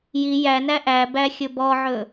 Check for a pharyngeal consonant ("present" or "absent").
present